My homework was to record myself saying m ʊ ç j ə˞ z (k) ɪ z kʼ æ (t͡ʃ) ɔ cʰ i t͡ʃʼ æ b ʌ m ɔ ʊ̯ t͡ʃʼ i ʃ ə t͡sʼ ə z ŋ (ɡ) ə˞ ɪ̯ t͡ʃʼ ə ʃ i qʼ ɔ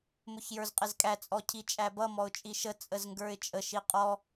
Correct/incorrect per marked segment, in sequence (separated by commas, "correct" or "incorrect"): incorrect, incorrect, correct